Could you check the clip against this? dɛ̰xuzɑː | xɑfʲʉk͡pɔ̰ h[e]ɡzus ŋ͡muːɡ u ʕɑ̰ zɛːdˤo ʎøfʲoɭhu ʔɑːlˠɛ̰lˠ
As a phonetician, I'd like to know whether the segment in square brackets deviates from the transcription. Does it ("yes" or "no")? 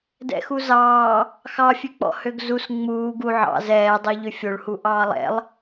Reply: yes